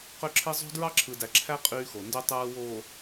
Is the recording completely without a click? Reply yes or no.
no